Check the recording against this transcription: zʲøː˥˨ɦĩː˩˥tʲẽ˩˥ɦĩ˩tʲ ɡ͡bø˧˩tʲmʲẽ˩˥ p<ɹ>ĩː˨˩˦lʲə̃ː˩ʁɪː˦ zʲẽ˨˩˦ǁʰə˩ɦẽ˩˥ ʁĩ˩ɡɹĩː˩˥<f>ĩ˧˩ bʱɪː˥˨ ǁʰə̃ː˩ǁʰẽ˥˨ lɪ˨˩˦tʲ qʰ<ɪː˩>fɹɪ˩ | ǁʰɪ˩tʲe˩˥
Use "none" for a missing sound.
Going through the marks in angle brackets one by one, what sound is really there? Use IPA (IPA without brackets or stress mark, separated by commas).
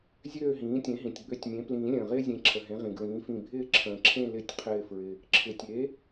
l, f, ɪː˧˩